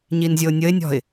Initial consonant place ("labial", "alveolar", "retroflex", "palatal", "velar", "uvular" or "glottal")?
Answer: palatal